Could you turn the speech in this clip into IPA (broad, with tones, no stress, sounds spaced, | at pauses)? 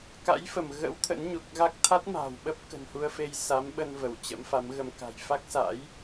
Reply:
k a̰˧˥ j f ə˧˩ m ɣ ə̰˧˥ w t̪ʰ ə̰˧˥ n ɲ u˨˩ k̚ ɣ a˦˥ k̚ t̪ʰ a˦˥ t̚ m a̤ː˨˩ w ɓ ə˦˥ p̚ k ə̤˨˩ n h u˧ ə̯ f e˧ j s a˨˦ m ɓ ə˧ n v ə˧˩ w t͡ɕ ə̰˧˥ m f a˨˦ m ɣ ə˧ m k a̤˨˩ j f a˦˥ k̚ s a̰˧˥ j